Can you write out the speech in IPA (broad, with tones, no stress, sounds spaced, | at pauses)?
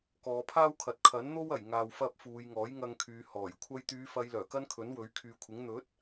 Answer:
k ɔː˨˧ pʰ aː˥ w kʰ ɐ˨ t̚ kʰ ɐ˨˥ n n̪ o˥ w ɐ˨˩ j ŋ aː˨ w f ɐ˥ p̚ f uː˨˧ j ŋ ɔː˨˥ j ŋ ɐ˧ ŋ kʰ yː˨˧ h ɔː˨˩ j kʷʰ ɐ˧ j t̪ yː˨˧ f ɐ˨˧ j l œː˨˩ k ɐ˥ n kʰ ɵ˨˥ n w ɵ˨˥ ɥ kʰ yː˨˧ kʷʰ ɪ˨˥ ŋ n̪ ɵ˨˥ t̚